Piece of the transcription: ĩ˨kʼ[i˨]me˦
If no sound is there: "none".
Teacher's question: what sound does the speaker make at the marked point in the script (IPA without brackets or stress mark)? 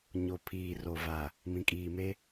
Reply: iː˨